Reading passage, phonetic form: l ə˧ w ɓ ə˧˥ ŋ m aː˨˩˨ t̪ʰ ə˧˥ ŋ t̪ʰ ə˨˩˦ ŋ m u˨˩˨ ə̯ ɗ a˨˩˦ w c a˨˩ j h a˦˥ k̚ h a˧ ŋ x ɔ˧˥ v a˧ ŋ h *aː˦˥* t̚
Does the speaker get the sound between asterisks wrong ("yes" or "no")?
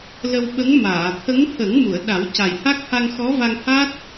no